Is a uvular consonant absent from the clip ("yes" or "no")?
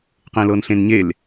no